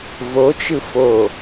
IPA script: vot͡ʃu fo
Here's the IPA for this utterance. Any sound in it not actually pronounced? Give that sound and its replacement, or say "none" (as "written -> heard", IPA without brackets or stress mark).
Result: u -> ɯ